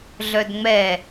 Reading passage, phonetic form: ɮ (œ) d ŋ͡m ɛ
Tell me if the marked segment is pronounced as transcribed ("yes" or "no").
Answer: yes